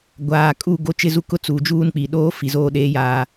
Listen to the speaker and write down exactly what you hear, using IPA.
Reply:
ɡʷ aː˨ kʼ u˦˨ ɡ o˦ t͡ʃ ɪ˦ z u˦ k ʊ˦ t͡s uː˨ d͡ʒ uː˦ n k͡p i˨ ɗ oː˦ f i˨ z oː˦ ɗ eː˦ j aː˦

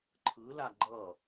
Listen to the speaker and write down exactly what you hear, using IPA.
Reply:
ǃʰ ɯ l a ɡ͡ǃ ʌ

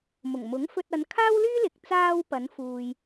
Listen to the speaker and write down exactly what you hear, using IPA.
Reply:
m ʊ˨˩ ŋ m ʊ˨˥ ŋ f ɵ˧ t̚ ɐ˨˧ n kʰ aː˥ w l yː˥ l ɪ˨ k̚ t͡s aː˧ w p ɐ˨˧ n f uː˧ j

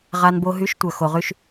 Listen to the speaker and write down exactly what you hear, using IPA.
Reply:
ʁ a˧ n b o˧ ɦ y˨˦ ʃ tʷ œ˨ x o˨ ʁ y˧ ʃ

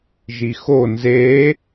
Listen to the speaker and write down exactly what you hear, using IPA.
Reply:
ʒ i x o n z e

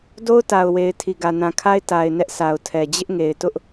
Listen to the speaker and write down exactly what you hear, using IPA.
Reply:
d o˦ ʊ̯ t a˨ ʊ̯ w e˨ ɪ̯ tʰ i˨ ɡ ä˨ n ã˨ kʰ a˦ ɪ̯ t a˨ ɪ̯ n ɛ˦ ʔ s a˨ ʊ̯ tʰ ɛ˨ d͡ʑ ɪ˦ ʔ ŋ e˨ ɪ̯ t ʊ˦ ʔ

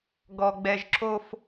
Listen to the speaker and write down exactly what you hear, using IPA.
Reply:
ɡ ɔ˦ ɡ͡b ɛ˦ ʒ ǁ o˦ f

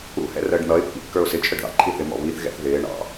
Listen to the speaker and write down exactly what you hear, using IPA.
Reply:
ṵ h ɛ̰ r əː ɖ n̪ ʌ ɪ̯ pː ḭ kː ə˞ ʊ̯ s ɪ t͡ʃʰ ə ɖ ð ɑ̰ ǃʰ i θ ɪ m ɔ̰ β i θ ɣ ɛ̰ θ ð ɪː ɳ ɑ̰

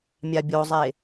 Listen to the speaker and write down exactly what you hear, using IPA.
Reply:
mʲ a bʲ o zˤ e

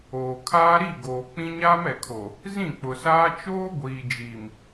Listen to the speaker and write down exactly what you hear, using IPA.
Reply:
oː˨ kʰ aː˦ ɾ i˦˨ ɡ oː˨ k͡p ĩ˦ ɲ aː˦ m ɛ˨ kʰ o˨ | z ĩ˦˨ k͡p ʊ˨ s aː˦ t͡ʃ oː˦ ɡʷ iː˨ d͡ʒ iː˨ m

